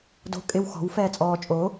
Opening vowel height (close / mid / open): mid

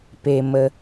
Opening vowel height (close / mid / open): mid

